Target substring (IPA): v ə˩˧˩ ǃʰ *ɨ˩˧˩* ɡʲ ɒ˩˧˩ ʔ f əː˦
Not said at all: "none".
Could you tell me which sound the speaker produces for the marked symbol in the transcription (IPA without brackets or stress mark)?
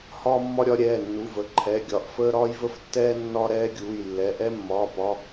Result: ɛ˩˧˩